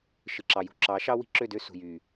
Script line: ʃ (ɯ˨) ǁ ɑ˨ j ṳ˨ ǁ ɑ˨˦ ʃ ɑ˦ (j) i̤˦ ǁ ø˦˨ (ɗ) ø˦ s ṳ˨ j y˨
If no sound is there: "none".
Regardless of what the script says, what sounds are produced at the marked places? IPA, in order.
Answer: ɯ˨, w, d

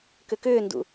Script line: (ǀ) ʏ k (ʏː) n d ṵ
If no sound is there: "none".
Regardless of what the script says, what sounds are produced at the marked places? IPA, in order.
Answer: k, ʏː

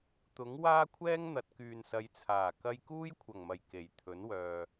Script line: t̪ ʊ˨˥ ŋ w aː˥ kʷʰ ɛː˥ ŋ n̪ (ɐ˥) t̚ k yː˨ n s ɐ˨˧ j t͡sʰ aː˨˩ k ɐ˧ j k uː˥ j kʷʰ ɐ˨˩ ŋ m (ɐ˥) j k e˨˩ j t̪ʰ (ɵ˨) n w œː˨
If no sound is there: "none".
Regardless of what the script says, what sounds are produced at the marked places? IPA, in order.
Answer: ɐ˨, ɐ˨˩, ɵ˨˥

